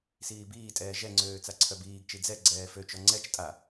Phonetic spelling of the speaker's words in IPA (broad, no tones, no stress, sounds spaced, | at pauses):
s iː b iː tʼ ɛː ʒ ɛ ŋ͡ǀ øː t͡s a ǀʰ œ b iː ɡ t͡ʃ i d͡z ɛ ɡ͡ǀ ɛː f ø t͡ʃ ɔ ŋ͡ǀ ɛ t͡ʃ tʼ a